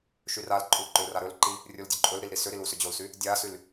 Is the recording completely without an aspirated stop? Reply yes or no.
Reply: yes